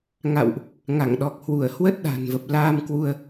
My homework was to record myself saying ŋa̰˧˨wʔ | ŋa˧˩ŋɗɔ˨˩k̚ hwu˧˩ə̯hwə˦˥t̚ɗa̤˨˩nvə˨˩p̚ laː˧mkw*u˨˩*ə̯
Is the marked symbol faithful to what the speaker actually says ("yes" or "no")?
no